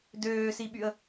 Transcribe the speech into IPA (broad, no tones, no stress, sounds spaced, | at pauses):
d øː s i ɓ y ə̯